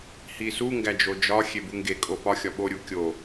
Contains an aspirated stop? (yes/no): no